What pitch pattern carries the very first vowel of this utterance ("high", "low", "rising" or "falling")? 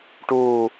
falling